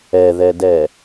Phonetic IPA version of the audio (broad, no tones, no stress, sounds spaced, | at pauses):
ɛ ð ɛ d ɛ